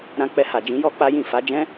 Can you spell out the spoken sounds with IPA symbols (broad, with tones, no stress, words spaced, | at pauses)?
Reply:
ɾã˧k͡pɛ˧ ha˨d͡ʒĩ˨˦jɔ˦ k͡pa˦jĩ˦˨ fa˨˦d͡ʒɛ̃˦